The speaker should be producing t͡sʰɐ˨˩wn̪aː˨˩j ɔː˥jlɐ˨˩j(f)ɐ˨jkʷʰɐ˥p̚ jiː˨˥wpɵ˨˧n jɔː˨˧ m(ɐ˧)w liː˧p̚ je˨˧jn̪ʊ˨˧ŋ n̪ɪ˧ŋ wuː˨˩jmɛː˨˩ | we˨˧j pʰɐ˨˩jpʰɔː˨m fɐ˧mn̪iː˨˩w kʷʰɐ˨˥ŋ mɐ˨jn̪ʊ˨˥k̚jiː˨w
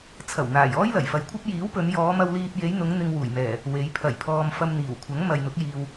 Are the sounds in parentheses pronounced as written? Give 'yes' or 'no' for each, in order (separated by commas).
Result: yes, yes